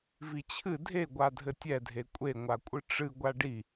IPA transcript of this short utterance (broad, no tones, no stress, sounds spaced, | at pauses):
v i t͡ɕʰ ɨ dʱ e ɡʷ a dʱ ɘ tʲ ɛ dʱ e kʷʼ e ŋʷ a kʷʼ ɨ ʈ͡ʂ ɨ ɡʷ a ɖ i